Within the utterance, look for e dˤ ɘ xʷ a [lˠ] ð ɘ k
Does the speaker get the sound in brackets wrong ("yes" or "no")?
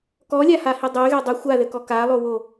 yes